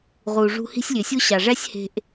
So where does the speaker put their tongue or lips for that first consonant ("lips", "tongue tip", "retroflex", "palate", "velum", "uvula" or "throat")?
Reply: uvula